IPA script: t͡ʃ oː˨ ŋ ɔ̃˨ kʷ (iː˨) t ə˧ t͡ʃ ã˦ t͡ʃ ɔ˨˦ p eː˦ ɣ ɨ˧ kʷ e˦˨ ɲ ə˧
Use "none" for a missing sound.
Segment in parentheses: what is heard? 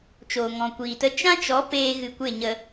iː˨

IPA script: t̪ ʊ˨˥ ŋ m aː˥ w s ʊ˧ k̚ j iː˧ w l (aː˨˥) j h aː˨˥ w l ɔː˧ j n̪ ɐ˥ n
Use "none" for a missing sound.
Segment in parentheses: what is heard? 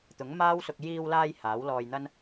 aː˧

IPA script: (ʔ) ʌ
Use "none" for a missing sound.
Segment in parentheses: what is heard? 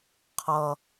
qʰ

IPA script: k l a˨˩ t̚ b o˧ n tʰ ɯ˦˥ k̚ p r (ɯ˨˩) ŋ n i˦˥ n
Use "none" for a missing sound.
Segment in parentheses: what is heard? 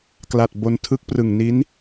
ɯ˨˩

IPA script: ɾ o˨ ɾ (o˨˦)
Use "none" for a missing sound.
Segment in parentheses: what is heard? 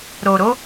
o˨˦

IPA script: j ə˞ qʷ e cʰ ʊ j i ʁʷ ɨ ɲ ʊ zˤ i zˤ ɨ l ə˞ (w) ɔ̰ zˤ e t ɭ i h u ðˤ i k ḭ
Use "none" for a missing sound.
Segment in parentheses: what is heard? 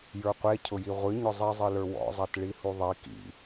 w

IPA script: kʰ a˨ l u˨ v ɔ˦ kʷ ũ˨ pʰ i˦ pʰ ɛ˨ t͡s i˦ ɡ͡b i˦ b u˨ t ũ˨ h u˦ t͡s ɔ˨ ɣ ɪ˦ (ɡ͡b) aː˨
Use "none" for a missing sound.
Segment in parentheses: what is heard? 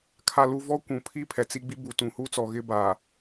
b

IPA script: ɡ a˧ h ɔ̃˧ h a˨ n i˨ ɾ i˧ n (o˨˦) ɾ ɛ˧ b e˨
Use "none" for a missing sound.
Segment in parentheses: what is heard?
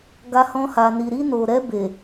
o˨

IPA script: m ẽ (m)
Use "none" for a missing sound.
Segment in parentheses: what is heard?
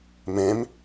m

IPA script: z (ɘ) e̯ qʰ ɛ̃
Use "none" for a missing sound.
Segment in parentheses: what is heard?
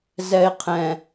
ɛ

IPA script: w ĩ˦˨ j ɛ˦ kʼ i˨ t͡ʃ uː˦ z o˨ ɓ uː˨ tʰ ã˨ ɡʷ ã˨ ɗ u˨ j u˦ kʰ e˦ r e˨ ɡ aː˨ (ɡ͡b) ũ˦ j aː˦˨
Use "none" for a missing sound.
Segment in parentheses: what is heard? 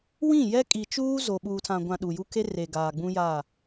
ɡ͡b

